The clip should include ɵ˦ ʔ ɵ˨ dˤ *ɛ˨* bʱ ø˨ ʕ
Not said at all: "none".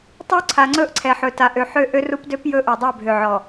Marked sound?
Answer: ɛ˦˨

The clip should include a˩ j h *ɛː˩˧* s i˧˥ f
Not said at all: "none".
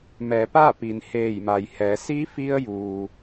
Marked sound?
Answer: ɛː˩˧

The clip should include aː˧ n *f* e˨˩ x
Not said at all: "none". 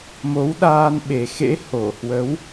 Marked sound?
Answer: ɓ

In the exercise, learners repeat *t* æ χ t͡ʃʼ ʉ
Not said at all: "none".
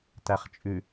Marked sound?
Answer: t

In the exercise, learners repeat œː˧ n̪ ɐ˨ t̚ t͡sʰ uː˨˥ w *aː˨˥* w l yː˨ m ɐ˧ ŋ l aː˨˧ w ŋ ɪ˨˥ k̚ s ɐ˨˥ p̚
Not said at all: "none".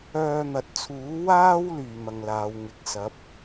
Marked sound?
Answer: aː˥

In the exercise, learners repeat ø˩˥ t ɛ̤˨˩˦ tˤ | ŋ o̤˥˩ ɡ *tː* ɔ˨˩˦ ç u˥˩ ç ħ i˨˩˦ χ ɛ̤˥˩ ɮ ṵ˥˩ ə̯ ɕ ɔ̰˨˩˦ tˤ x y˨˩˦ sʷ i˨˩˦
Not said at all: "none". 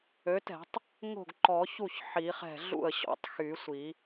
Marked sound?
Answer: ǃ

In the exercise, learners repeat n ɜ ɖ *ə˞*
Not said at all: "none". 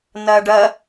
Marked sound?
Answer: ɜ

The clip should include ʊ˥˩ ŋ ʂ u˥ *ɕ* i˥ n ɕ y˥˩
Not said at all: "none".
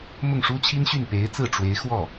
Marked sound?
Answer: t͡ɕʰ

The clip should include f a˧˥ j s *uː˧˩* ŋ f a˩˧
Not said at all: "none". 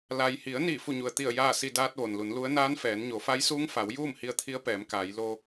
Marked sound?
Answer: uː˧˥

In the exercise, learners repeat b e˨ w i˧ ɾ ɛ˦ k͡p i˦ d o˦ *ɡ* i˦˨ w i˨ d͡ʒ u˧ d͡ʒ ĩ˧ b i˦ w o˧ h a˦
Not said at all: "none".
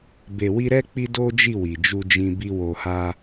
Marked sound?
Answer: d͡ʒ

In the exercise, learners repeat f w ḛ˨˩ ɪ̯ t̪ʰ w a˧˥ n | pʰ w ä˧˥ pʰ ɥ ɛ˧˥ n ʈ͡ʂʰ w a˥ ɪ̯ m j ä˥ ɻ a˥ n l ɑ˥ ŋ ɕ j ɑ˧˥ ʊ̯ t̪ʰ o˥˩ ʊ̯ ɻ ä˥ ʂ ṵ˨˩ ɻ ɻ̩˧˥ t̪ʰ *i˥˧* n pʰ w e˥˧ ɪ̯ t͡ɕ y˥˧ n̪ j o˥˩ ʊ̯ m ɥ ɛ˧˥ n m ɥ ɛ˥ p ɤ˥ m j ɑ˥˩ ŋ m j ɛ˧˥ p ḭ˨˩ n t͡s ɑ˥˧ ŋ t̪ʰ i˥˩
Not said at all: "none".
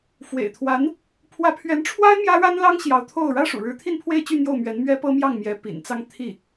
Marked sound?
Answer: i˥˧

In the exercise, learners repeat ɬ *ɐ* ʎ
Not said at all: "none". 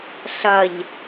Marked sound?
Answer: ɐ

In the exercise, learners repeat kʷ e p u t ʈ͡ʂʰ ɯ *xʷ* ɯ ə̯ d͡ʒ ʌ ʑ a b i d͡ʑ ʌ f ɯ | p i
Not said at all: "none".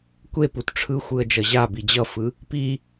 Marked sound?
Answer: xʷ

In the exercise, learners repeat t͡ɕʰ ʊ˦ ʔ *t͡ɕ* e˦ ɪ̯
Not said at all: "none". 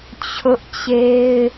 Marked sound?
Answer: t͡ɕ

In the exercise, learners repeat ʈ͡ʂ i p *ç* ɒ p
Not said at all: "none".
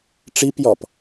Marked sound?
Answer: j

